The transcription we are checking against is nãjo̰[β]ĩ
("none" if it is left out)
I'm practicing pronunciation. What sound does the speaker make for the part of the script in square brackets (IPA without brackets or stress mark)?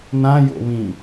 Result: β